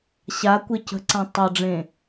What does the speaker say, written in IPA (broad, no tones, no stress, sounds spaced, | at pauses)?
ɕ a kʷ e c ə̤ ǀ ã tˤ ɤ ɖ͡ʐ ẽ